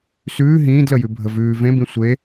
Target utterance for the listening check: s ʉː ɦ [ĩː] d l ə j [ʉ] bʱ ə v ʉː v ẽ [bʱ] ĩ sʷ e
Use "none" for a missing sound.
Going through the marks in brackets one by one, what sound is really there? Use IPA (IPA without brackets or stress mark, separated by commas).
ĩː, ʉ, b